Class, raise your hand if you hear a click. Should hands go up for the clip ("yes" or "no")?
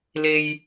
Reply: no